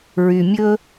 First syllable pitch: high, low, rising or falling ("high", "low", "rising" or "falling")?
low